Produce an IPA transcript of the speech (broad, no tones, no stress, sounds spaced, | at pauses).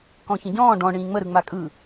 k ɔ̃ ç ə̃ ɟ ɔ̃ː ɖ ɔ̃ ɳ ĩː ŋ͡m ə ɾ ɯ ŋ͡m a kʼ ɯ